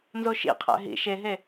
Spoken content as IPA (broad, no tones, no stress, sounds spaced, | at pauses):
n z o ʃ ḭ qʰ æ̰ ɦ ḭ ʃ e ɦ e